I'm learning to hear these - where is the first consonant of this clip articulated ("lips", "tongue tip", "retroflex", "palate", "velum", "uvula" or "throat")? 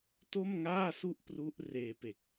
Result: tongue tip